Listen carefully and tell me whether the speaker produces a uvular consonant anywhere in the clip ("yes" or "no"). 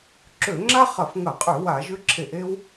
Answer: yes